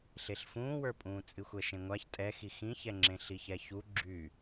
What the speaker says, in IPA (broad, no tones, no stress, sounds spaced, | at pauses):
ɬ e ɬ f ũː w ə˞ pʼ ũː t͡sʼ ɨ xʷ ɛ ʃ ẽ ŋʷ a ç tʼ ɛ x i x ĩ ç ɛ ŋ͡ǁ ẽ ɬ i ç ɛ ç u ɡ͡ǁ y